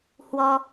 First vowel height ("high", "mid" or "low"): mid